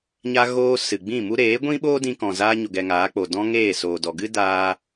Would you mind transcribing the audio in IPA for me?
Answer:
ɲ a˧ ɣ oː˧ s ɨ˨ ɡ͡b ĩ˦˨ m u˦ ɾ eː˨˦ ɡʷ ĩ˦ ɓ oː˦ d ĩ˧ k ɔ̃˨ z aː˦ ɲ o˧ ɡ ɛ˧ ŋ aː˨˦ k͡p o˨ d ɔ̃˦ ŋ eː˦˨ s oː˨ d ɔ˨ ɡ ɨ˦ d aː˧

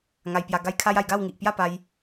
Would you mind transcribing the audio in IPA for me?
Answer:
ŋ a˧ j p j a˧ ɡ a˦ j kʰ a˦ j a˧ j ɡ a˥˧ w ŋ i˨ ʔ p j a˥˧ p a˧ j

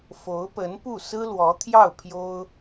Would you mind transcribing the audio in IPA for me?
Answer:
f o˧˥ ʊ̯ p ə˧˥ n p u˥˩ s ɹ̩˥ l w ɔ˧˥ t̪ʰ j ɑ˥˩ ʊ̯ pʰ j o˥ ʊ̯

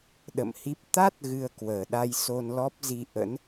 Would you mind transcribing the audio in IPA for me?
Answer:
ɗ ə̰˧˨ m h i˦˥ p̚ t̪ a˦˥ t̚ ɣ ɨ˧ ə̯ k w əː˨˩ ɗ a˧ j s o˧ n l ɔ˦˥ p̚ z i˧ ʔ ə̰˧˥ n

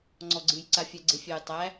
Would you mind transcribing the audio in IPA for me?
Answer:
ŋ͡ǀ ɔ ɡ͡ǀ ɨ j ǀ a fʲ æ ɡ͡ǀ e fʲ æ j tˤ æ

